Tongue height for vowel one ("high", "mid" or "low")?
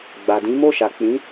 low